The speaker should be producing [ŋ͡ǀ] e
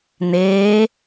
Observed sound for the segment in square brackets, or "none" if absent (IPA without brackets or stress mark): n̪